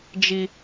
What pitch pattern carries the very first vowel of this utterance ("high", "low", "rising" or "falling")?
high